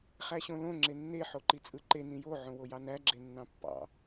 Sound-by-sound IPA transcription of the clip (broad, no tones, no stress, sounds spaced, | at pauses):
χ æ ɕ õ l õ ŋ͡ǁ e nː e ħ o ǃ i t͡sʼ ɯ ǃ e n ĩ j o ʕ õ w o j ɑ n æ ɡ͡ǁ e nː ɑ̃ pː ɑ̰